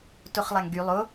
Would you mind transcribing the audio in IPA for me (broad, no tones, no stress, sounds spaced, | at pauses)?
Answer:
t o χ lˠ a ŋ ɡ y lˠ o